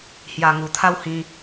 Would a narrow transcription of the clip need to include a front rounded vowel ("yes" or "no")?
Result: no